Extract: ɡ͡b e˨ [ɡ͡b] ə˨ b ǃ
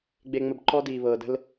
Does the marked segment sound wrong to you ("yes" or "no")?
yes